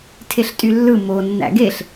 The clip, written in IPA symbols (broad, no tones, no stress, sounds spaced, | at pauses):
tʰ e ɬ tʼ y lː ɯ m o nː æ̰ ɡ e ɬ